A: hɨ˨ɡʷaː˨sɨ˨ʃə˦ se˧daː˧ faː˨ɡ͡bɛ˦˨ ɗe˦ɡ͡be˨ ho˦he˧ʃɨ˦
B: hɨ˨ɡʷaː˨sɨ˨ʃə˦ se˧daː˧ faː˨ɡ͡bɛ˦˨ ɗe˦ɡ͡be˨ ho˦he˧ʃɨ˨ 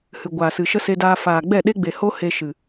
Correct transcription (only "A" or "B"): B